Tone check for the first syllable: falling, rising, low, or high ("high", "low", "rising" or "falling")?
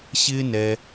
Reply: high